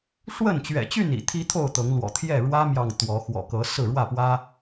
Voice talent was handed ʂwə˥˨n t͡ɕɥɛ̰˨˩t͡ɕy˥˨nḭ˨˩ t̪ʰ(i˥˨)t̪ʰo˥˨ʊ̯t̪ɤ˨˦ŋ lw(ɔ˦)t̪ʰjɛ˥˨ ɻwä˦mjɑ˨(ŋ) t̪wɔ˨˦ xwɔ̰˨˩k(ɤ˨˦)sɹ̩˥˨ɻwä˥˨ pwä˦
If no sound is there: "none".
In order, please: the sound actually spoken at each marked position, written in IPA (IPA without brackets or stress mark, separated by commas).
i˦, ɔ̰˨˩, ŋ, ɤ˨˦